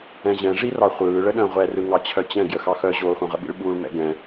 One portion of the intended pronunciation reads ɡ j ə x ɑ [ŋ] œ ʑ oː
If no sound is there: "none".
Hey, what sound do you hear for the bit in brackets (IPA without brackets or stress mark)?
x